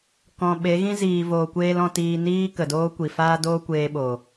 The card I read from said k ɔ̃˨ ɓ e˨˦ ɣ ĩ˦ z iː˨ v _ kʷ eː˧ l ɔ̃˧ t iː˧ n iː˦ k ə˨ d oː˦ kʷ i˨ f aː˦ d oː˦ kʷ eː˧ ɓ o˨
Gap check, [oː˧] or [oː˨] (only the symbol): oː˨